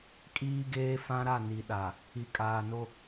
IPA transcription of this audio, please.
kʼiː˦ɡeː˦ fã˦ɾa˦˨ ni˨ɗa˨ | i˨ kʼaː˨no˦

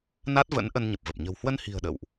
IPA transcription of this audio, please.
na˦˥t̚və̰˧˥n ʔə˧nɲə˨˩p̚və˨˩p̚ ɲə̤˨˩whwə˧nhi̤˨˩ə̯ ɗə̰˧˨wʔ

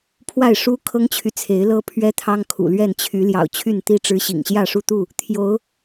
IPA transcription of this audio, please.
pʰwa˥˨ɪ̯ ʂu˦kʰɤ˦ŋt͡ɕʰy˨t͡sʰe˨˦ɪ̯ lɤ˦ pʰɥɛ˦t̪ʰɑ˦ŋ kʰṵ˨˩lɥɛ˥˨nt͡ɕʰy˨˦ ljɑ̰˨˩ʊ̯t͡ɕʰy˥˨nt̪i˥˨ʈ͡ʂɻ̩˦ ɕḭ˨˩ŋɕjä˥˨ʂu˥˨t̪u˥˨ | t̪ʰjo˨˦ʊ̯

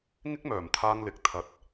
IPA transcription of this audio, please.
ŋɪ˥k̚mœː˨˩m t̪ʰaː˥ŋlɪ˨˥k̚ t̪ʰɐ˨˥t̚

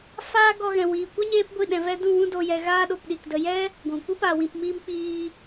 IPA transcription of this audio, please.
faː˦ɡɔ˧ ɣɛ̃˨wiː˨kʷɛ˦ ɲeː˦pɡʷi˦˨ ɗɛ̃˨ vɛ˧dũ˦˨ wũ˦do˧ jɛ˧ ɣaː˦ ɗo˧pɗi˨kdə˧ jɛ˦ | ɡʷũ˨ kʷi˦ pa˨wĩ˨pmiː˧m k͡piː˧

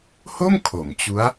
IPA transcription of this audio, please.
ho˥˩m kʰo˩˦mt͡ɕu˦˥a̯

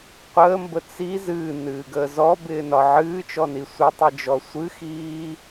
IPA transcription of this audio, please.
qʷəːmbə t͡si zɨːnɨːɡəː zɔbɪːnɒ ʕɨːt͡ʃɔni sʷɪtˤid͡ʒɔ sʷɨxiː

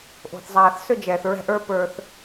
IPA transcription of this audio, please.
ʔo̤˨θzˤaː˨θsɵ˦ d͡ʒɛː˨θɹɛ̤˦ʔ ə˞˦ pə˞˦θ

